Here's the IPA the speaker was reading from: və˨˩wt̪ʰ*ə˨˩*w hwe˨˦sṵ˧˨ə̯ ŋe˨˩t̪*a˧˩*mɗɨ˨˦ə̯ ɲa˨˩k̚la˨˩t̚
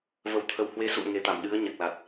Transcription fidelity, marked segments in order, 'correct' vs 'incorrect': correct, correct

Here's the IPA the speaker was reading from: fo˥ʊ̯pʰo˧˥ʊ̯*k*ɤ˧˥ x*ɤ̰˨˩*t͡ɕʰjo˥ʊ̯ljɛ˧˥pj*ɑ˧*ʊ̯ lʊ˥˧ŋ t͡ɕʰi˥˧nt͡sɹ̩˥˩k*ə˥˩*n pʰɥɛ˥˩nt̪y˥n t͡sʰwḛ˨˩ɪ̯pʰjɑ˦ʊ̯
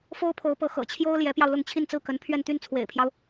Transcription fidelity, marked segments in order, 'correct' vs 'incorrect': incorrect: p, correct, correct, incorrect: ə˧˥

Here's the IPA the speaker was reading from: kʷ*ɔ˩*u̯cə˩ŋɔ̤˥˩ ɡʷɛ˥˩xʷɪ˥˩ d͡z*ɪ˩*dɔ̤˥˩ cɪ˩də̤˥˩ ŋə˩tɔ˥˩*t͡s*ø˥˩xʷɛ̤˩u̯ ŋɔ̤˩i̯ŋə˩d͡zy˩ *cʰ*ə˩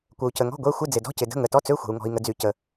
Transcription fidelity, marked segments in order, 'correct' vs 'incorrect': incorrect: ə˩, correct, correct, incorrect: c

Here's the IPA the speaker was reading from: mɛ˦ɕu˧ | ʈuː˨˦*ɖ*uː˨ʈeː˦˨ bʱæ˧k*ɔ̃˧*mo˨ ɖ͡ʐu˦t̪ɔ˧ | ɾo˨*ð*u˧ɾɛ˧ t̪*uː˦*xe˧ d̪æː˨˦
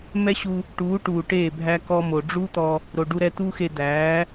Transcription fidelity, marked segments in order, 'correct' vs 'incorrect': incorrect: ʈ, incorrect: ɔ˧, incorrect: ɖ, correct

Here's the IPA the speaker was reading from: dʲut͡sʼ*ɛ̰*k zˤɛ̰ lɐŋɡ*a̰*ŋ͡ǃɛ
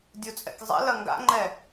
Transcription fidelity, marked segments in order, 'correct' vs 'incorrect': correct, correct

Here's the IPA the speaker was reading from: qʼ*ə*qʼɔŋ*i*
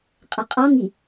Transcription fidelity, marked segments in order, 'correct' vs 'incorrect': correct, correct

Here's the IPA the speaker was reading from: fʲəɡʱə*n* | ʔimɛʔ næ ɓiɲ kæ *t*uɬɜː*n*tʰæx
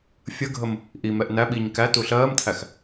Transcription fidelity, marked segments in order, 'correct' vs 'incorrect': incorrect: m, correct, incorrect: m

